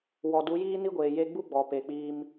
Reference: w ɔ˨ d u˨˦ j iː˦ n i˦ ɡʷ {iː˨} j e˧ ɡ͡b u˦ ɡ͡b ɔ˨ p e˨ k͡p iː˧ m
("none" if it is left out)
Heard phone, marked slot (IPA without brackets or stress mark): eː˨